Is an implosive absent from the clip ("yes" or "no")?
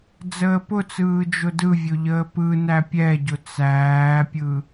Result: yes